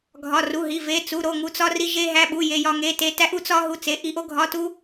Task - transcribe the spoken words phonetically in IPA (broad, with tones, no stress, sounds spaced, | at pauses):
ɡʱ ɒ˧˥˧ r u˧˥˧ ɦ i˧˥˧ v e˧˥˧ t͡s u˧˥˧ ɾ o˧˥˧ ŋ u˥ t͡s ɒ˥ r i˥ ʒ e˥ ɦ æ˧˥˧ ɓ u˧˥˧ j e˥ j ɒ˥ ŋ e˧˥˧ t e˥ t æ˥ ʔ u˥ t͡s ɒ˥ ɦ u˥ t͡s e˧˥˧ ʔ i˥ ʔ o˥ ɡʱ ɒ˧˥˧ t u˥